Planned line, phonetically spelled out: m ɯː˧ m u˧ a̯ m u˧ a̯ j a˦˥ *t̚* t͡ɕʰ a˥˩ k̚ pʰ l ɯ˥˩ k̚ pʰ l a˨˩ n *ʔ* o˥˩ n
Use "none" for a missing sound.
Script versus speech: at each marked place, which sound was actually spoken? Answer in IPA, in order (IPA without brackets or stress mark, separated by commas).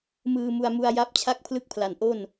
p̚, ʔ